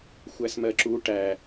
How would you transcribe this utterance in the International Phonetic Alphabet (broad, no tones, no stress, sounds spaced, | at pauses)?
xʷ æ s m ɜ ǁ u ʈ æ